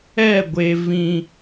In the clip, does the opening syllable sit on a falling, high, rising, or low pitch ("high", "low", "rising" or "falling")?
falling